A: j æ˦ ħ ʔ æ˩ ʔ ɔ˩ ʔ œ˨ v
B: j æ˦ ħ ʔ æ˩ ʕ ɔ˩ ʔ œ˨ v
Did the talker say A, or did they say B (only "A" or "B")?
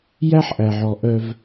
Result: B